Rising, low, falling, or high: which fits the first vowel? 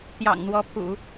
low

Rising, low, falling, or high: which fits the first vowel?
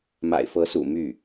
low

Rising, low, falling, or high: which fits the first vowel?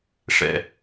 low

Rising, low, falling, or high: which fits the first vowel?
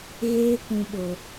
high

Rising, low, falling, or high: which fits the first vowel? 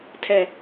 low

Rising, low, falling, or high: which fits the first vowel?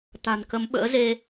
low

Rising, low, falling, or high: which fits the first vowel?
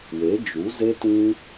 rising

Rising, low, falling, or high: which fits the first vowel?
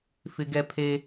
high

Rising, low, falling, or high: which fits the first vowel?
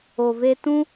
low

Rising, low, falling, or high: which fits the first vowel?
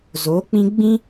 rising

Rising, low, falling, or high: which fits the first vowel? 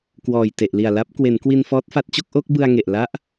low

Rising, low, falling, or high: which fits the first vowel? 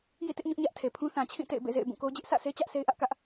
falling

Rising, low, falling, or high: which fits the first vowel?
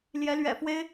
rising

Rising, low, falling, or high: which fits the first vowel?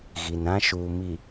low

